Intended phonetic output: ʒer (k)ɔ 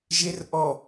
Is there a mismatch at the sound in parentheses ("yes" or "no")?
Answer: yes